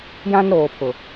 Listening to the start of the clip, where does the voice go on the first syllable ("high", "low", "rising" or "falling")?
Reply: high